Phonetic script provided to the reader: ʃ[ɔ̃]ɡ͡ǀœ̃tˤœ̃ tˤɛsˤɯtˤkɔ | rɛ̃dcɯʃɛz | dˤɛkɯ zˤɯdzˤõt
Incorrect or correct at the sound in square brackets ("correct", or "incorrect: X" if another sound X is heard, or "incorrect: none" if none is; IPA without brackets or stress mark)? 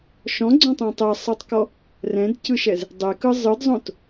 correct